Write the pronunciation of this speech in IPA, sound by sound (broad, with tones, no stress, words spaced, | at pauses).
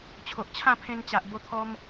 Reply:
t͡ɕʰo˨ʔt͡ɕʰã˥˧pʰẽ˧nt͡ɕa˨ʔ bo˧t̪ʰɔ˧m